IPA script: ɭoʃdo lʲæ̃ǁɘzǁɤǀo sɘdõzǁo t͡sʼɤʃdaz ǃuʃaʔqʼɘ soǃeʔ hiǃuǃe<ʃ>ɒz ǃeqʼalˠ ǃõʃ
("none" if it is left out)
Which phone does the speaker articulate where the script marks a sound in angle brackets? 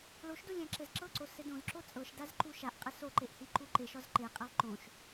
ʃ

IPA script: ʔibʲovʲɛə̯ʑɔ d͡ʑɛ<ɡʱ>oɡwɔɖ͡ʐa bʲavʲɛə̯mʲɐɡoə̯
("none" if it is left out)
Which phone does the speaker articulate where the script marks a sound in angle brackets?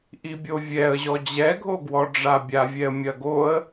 ɡʱ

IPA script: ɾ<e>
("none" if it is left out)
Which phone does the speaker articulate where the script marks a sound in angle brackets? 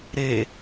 e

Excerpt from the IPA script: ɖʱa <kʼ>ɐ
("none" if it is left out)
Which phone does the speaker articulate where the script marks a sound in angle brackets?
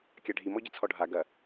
ɡ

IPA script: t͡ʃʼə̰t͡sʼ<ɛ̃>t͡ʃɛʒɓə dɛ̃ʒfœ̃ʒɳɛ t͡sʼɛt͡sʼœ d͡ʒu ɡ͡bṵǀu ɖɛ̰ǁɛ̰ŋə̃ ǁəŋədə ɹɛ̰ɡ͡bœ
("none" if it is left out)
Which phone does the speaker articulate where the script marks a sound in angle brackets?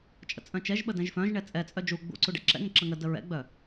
œ̃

